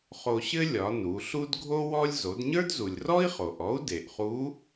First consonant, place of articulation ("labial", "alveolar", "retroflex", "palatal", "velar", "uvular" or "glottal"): uvular